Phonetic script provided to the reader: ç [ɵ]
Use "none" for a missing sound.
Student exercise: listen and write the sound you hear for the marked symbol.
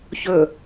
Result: ɵ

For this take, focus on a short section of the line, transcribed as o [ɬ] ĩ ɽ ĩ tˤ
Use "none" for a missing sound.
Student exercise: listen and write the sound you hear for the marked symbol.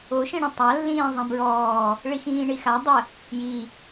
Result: ʃ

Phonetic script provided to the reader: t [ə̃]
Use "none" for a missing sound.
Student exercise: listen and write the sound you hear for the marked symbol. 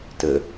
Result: ə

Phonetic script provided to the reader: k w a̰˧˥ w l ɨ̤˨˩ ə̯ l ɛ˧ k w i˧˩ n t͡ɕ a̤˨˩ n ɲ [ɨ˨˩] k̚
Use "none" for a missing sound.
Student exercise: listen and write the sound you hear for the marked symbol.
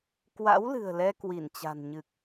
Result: ɨ˨˩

